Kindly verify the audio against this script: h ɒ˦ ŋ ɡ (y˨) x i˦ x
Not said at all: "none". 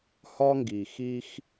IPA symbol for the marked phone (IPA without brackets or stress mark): i˨